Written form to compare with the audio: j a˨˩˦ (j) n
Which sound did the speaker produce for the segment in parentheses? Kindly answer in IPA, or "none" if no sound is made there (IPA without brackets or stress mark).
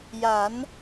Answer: none